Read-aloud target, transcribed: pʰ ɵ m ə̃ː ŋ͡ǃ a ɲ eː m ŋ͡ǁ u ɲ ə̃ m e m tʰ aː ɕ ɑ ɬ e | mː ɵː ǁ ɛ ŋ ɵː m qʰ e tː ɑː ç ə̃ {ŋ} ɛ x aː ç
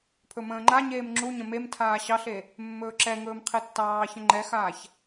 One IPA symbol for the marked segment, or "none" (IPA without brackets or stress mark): ŋ͡ǃ